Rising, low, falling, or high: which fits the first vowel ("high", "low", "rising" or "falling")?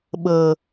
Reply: low